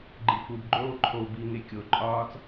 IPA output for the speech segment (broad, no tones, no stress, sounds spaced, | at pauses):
ɡ͡ǃ i f u b ɡ͡ǃ oː ǃʰ o b i ŋ e kʲ o ǃʼ ɒː t͡s